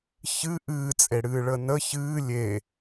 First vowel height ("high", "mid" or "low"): high